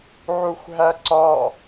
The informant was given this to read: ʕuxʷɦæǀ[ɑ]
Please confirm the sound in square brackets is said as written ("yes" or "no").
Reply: no